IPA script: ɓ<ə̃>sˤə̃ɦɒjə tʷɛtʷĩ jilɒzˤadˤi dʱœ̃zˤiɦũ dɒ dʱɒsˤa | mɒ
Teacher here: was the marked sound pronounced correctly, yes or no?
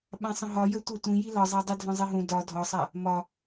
no